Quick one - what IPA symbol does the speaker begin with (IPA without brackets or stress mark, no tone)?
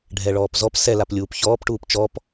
ɖʱ